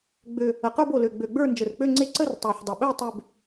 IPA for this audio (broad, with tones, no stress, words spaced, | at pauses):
ɡ͡bø˨˩ | ə˨˩qə˞˥˧b o˨˩lø˨˩ ɡ͡bø˨˩ɡ͡bə˞˥˧ nd͡ʒə˨˩rk͡pø˥˧ŋ͡ǀe˥˧ ǀə˥˧rtˤə˞˨˩ħdˤə˨˩ɓø˥˧ tˤø˥˧b